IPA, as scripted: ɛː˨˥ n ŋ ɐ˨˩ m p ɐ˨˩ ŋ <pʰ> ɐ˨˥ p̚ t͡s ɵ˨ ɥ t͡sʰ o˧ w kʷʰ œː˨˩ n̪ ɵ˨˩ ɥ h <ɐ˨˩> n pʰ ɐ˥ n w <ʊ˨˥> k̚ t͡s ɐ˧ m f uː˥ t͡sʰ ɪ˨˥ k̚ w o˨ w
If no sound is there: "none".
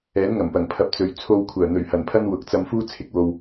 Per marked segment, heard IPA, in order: pʰ, ɐ˨˩, ʊ˨˥

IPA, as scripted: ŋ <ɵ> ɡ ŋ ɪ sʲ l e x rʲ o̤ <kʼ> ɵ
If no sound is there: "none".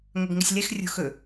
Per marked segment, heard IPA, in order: ɵ, x

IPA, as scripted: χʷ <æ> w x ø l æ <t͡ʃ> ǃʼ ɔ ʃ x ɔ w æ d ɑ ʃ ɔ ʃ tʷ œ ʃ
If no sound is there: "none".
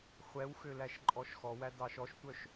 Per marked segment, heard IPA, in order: ɛ, ʃ

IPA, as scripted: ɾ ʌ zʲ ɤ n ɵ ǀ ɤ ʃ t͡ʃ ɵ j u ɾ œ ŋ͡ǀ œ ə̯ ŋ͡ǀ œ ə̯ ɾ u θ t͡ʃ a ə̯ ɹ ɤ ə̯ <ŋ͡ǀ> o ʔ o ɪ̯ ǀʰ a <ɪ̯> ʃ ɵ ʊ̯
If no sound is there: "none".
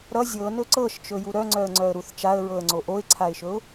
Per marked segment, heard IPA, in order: ŋ͡ǀ, ɪ̯

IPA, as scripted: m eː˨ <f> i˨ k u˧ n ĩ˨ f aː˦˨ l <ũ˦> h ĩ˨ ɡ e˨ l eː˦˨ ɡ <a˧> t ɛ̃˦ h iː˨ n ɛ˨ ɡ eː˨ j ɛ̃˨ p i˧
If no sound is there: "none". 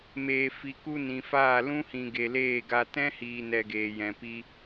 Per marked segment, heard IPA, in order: f, ũ˦, a˧

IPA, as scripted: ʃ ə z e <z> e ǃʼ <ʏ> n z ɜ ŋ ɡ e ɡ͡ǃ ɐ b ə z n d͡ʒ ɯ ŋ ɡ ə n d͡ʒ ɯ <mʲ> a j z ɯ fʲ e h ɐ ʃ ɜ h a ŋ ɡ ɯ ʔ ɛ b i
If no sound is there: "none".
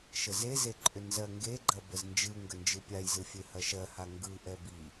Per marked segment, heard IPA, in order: z, ʏ, pʲ

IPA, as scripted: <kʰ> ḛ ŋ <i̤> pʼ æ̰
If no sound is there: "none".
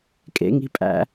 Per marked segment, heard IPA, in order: kʼ, i̤

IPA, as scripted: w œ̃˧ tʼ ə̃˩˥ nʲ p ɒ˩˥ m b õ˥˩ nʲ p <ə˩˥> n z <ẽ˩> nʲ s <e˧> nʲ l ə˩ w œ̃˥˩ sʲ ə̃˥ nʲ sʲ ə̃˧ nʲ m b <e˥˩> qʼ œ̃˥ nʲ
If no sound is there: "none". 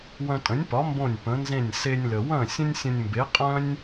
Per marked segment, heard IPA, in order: ə̃˩˥, ẽ˥˩, e˧, e˩˥

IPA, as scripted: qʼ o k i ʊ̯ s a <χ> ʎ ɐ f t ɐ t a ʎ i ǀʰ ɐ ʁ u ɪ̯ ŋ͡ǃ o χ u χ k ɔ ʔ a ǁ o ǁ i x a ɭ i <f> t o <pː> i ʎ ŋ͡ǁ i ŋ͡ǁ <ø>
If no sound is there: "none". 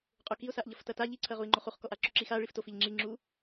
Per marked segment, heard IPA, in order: ʔ, f, f, u

